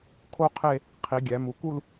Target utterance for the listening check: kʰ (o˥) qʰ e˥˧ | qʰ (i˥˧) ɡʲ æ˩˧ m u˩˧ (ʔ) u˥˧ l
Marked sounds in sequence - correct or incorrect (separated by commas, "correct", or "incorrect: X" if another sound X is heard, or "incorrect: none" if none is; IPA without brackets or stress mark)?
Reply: correct, incorrect: i˩˧, incorrect: k